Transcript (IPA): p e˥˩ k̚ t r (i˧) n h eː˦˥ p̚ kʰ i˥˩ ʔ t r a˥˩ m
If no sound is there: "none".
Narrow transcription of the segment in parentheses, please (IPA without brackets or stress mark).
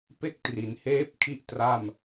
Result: i˩˦